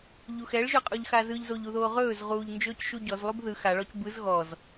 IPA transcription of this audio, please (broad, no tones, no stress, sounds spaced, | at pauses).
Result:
ʎ u x ɛ ɭ ʒ ɵ qʼ u ʎ x a z ɯ ʎ z o ʎ u ð oː ʁ ɵː z ʁ uː ʎ n d͡ʒ ɵː c ʃ u ɟ ɔ z lˠ u b ð ɯ x a ɭ ɔ c b ɯ z ɣ ɔ z